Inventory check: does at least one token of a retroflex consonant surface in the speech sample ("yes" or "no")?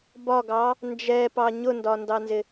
no